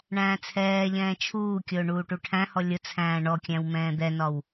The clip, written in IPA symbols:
ɳæ̃ːt͡sʰɛːʎɛ̃ː t͡ʃʰuːkʲʊː ɳuːʈuʈʰæ̃hɔ lʲʊ t͡sʰæ̃ːɳɔkʲæ̃w mɛ̃ːd̪ɛnɒw

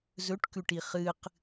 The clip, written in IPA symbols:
zɵʈkʉʈi χɨq

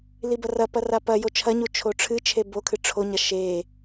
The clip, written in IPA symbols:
libɐrɐpɐ rapɐ jot͡ʃʰɐɲu t͡ʃʰoʈ͡ʂʰɨt͡ʃʰe bokʰɨ ʈ͡ʂʰoɲɐ ʃe

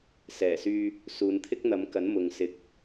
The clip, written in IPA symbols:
sɛː˨˩syː˧ | suː˨˧nt̪ʰɪ˥k̚n̪ɐ˨˧mkɐ˨˥n mʊ˨ŋsɪ˨˥k̚

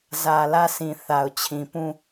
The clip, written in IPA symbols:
zä˨lä˦˨sʰĩ˨ θa˨ʊ̯t͡ɕʰĩ˨pũ˦˨

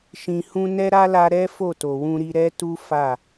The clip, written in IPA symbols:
ʃĩ˨hũ˧nɛ˦ ɾa˦la˧ ɾɛ˦ fo˦˨to˨wũ˧ɾi˧ ɾɛ˦tu˦ fa˦˨

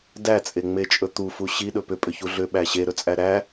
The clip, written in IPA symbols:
dæt͡sʼeŋ͡met͡ʃʼɵ t̪ufu ɕiɗɵ pʏpʼʏçu ɮʏɓæ ɕeɾɵt͡sʼæ ɾæ

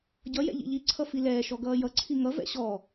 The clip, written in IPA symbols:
ɟʌjɛ̰ ʎḭʎiǀʰʌ filɛːʃɔ ɡʌːjʌǀʰi ŋʌvɛ̰ ɕɔ

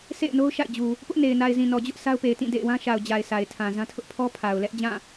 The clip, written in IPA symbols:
sʰḛ˦˨ɪ̯no˦ʊ̯ ʃa̰˦˨ɪ̯d͡ʑu˨ | pʊ˦ʔne˨ɪ̯na˨ɪ̯zĩ˨ nɔ˨d͡ʑʊ˦ʔ sʰa˦ʊ̯pe˨ɪ̯tĩ˦˨dḛ˦˨ɪ̯ wã˦ʃa˨ʊ̯ d͡ʑa˨ɪ̯ sʰa˨ɪ̯tʰã˨zã˦ tʰʊ˦ʔpʰɔ˦ pʰa˨ʊ̯lɛ˦ʔd͡ʑã˦˨

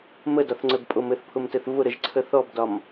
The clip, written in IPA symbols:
mədɒθŋ͡ǀɘbpʼom ɘθpʰʊmtɘθ vʊɾəʒǀʰə θɔbdɒm

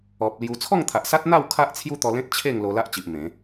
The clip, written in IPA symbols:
ɔ˨p̚lju˧ t͡sʰɔ˥˧ŋt̪ʰa˨ʔsa˦t̚n̪a˥˧w kʰa˦ʔ t͡sʰju˦t̪ɔ˧lẽ˦t̚ t͡ɕʰe˥˧ŋ lo˧la˦ʔt͡ɕi˨ʔ mẽ˨˦

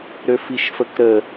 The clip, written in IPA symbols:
ɾøfiʃfəkɾə

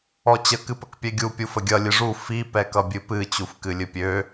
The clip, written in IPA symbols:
ɔt͡ɕə kɨpəkpʲɛɡʲu pʲufəɡʲʌ lʲɨʐu fi pɛkʌbʲɨpɨ t͡ɕufkɨlʲɨpʲø

